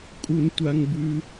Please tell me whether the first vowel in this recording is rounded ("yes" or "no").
yes